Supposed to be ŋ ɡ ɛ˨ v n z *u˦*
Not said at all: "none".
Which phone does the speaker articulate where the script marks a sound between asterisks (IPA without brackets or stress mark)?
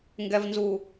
u˨